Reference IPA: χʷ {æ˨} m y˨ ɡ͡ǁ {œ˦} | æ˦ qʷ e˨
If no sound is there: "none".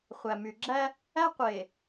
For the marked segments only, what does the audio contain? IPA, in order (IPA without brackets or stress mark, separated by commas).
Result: æ˨, æ˦